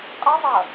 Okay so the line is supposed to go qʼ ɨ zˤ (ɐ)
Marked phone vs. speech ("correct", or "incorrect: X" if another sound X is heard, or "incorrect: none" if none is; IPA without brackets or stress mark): correct